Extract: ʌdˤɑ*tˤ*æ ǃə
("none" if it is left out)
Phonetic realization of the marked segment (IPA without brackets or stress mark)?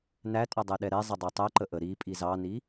tˤ